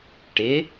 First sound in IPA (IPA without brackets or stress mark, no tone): ʈ